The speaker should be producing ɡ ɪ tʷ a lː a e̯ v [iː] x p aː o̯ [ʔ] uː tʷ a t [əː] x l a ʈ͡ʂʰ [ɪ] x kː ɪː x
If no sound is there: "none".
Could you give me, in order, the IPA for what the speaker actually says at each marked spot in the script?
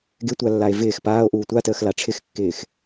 ɪː, ʔ, əː, ɪ

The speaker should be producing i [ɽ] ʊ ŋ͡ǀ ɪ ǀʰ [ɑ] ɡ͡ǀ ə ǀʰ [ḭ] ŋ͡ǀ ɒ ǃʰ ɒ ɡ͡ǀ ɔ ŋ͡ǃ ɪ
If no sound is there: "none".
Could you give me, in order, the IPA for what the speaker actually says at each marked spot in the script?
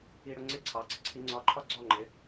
ɽ, ɑ, i

